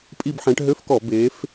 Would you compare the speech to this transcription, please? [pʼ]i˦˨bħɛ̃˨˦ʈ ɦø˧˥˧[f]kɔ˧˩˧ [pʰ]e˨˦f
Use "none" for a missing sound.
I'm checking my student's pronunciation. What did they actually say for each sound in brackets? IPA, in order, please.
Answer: pʼ, f, b

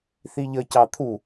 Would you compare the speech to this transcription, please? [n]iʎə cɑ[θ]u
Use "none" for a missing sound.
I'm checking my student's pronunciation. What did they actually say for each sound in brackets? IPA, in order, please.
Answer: θ, t̪ʰ

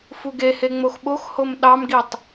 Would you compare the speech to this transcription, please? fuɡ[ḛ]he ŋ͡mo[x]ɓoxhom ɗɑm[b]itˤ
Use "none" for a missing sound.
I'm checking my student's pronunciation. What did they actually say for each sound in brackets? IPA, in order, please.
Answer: e, x, ɡ

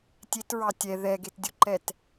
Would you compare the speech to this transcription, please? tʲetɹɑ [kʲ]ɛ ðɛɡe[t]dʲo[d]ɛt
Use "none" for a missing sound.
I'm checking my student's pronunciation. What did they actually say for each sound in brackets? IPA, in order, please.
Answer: tʲ, t, ǃ

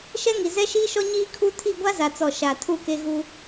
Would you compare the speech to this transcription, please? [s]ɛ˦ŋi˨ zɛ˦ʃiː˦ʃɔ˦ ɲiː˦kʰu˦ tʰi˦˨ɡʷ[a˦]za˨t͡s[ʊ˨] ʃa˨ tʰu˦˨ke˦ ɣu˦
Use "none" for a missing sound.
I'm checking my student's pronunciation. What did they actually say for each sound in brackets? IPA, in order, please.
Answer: ʃ, a˦, ɔ˨

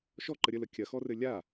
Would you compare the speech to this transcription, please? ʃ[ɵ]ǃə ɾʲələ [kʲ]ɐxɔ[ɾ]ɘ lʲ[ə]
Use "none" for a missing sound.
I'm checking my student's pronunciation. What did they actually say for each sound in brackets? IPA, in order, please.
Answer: ɔ, kʲ, r, a

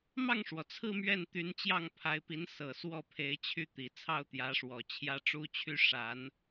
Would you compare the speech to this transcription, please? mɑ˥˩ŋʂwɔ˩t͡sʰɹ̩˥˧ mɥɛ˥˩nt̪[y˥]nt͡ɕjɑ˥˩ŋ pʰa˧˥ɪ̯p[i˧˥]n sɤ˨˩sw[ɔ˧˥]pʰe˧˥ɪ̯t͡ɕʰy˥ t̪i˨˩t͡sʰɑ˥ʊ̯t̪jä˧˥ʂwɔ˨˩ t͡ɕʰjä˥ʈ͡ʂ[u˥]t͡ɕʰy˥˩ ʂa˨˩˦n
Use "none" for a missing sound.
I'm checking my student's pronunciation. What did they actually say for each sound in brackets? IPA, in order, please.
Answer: y˧˥, i˧˥, ɔ˥˩, u˥

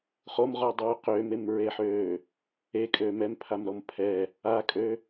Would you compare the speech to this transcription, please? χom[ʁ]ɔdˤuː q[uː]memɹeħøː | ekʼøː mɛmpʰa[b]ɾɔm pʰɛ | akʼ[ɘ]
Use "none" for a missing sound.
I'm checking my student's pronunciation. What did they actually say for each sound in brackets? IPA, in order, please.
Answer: ʁ, øː, m, ø

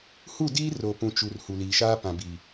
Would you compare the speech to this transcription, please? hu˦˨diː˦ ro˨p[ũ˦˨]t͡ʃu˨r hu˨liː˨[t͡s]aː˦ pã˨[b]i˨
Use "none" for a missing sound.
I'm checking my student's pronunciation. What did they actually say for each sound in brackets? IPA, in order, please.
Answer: ũ˨, ʃ, b

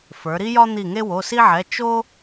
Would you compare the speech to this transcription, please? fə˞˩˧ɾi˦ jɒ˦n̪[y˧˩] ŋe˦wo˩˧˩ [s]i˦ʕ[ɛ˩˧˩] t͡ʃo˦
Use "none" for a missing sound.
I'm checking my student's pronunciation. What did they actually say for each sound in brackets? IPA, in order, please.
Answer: i˧˩, s, ɛ˩˧˩

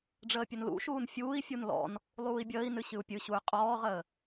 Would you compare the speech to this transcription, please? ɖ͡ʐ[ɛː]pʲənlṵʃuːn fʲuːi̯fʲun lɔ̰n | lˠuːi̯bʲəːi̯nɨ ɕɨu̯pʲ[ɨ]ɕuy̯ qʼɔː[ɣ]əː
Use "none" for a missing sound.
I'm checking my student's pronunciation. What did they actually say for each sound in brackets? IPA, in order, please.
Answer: əː, ɨ, ʁ

